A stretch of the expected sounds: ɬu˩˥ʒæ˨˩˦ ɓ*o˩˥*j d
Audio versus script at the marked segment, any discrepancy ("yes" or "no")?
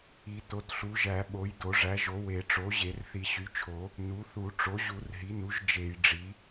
no